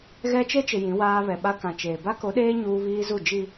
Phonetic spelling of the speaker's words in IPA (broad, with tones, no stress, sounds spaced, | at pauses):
ɣ ɛ˦ t͡ʃ e˦ t͡ʃ ɪ˨ j ĩ˨˦ w aː˦ β ɛ˨ ɓ a˦ k ã˨ t͡ʃ eː˨ b a˦ k o˨˦ ɗ eː˦ ɲ uː˦ β iː˦ z u˦˨ d͡ʒ i˨